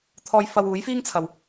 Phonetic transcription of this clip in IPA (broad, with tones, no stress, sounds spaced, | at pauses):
t̪ʰ ɔː˧ j f ɐ˧ w uː˨˥ j f iː˥ ŋ t͡sʰ ɐ˨ w